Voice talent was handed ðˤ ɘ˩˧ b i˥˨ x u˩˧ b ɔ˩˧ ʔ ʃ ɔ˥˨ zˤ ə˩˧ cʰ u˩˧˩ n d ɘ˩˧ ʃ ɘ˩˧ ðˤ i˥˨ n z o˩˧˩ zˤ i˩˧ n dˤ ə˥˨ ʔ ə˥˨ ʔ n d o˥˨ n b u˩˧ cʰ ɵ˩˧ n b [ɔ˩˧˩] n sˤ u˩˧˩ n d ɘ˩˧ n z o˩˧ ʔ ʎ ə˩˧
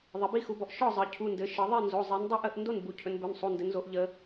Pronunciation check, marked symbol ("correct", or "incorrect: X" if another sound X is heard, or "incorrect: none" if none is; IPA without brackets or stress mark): incorrect: ɵ˩˧˩